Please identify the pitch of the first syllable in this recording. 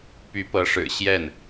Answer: rising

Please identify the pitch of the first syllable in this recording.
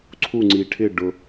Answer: falling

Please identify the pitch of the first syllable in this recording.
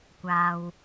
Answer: low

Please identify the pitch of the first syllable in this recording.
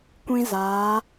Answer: high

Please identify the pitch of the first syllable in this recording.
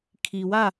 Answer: low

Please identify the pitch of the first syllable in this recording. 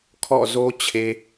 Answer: falling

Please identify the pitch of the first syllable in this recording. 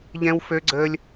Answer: high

